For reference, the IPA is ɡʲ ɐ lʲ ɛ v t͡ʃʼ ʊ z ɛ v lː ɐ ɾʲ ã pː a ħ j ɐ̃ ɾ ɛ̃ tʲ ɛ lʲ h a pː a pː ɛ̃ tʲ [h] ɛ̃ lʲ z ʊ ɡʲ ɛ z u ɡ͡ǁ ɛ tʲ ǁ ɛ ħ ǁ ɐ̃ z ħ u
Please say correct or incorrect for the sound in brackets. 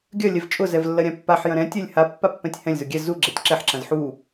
correct